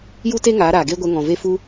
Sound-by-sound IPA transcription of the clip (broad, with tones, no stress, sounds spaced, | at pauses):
j u˦ t e˦ ŋ aː˨˦ ɾ aː˨ ɡ eː˦ ɡʷ ɛ˧ ŋ ɔ̃˨ v e˦ f u˦